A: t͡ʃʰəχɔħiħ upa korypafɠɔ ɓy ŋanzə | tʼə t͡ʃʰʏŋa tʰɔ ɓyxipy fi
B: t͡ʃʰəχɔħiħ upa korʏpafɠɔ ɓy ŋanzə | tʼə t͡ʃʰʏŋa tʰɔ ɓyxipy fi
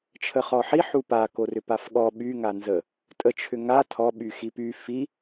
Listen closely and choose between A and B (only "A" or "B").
B